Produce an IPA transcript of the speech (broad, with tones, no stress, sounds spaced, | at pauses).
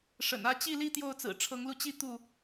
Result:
ʂ ə̰˨˩ n ä˥˨ t͡ɕ i˥˨ l i˦ t̪ j o˥˨ ʊ̯ t͡s ɹ̩˨˩ ʈ͡ʂʰ ɤ˨˦ ŋ l u˧ t͡ɕ i˦ t̪ u˥˨